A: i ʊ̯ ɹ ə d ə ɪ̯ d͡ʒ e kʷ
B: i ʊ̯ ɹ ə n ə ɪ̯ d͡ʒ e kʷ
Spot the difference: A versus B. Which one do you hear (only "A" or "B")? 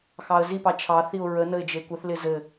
B